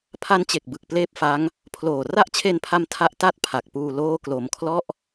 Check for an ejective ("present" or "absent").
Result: absent